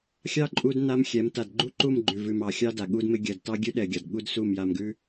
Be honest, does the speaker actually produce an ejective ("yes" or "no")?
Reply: yes